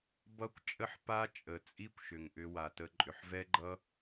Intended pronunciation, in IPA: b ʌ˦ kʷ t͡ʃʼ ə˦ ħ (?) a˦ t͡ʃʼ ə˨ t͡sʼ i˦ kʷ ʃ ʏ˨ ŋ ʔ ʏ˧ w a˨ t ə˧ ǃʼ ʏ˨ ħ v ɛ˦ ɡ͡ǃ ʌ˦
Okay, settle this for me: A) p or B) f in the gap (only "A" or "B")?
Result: A